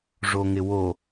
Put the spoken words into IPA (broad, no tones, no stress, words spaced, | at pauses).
ʐoŋɪwo